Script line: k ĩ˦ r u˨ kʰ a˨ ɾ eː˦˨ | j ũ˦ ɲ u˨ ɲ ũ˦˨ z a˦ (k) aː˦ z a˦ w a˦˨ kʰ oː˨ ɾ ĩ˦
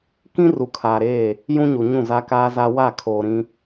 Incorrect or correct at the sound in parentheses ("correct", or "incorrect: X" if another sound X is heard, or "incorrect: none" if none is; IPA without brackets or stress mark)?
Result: correct